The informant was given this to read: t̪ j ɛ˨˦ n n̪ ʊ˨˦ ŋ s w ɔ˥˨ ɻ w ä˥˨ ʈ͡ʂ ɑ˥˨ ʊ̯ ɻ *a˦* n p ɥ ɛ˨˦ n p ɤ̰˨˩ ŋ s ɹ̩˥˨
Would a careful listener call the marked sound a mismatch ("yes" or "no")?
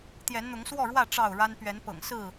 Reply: no